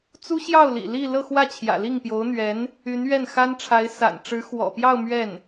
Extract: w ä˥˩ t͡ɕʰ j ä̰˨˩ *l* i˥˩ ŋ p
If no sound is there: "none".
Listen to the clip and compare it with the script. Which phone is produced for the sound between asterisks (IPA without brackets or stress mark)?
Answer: l